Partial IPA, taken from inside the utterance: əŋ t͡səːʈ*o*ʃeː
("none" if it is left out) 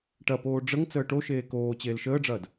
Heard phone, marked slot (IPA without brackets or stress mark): o